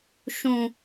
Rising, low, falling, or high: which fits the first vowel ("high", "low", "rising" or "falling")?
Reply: low